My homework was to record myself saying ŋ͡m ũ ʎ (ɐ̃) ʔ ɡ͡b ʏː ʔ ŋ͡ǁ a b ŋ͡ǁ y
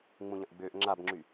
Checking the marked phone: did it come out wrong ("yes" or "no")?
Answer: no